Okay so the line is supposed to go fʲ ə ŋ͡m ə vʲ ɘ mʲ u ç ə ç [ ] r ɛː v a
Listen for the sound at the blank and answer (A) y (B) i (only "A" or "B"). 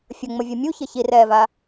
B